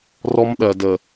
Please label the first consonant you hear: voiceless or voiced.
voiced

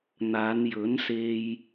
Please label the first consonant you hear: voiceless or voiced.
voiced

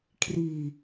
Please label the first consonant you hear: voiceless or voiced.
voiceless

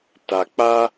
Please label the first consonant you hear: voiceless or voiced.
voiceless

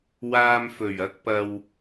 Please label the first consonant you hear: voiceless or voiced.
voiced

